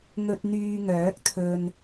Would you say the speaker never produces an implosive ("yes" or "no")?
yes